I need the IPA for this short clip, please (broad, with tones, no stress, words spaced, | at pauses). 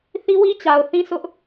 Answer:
θi˦ wi˦ t͡ɕa˨ʊ̯θĩ˦sʊ˦ʔ